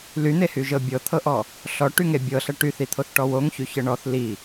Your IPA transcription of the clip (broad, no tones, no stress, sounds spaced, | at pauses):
l y n̪ e h y ʒ ɤ bʲ ɤ t̪ʰ ɤ ʔ ɔ | ɬ ɔ ʈ y ŋ e bʲ ɤ ɬ ɐ ʈ y θ i t̪ʰ o θ ʈ ɔ w o ŋ ç y ç ɤ ɳ ɔ θ l i